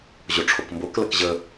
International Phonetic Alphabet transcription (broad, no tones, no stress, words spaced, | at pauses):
ʑoʈ͡ʂʰokmboklɐk ʑə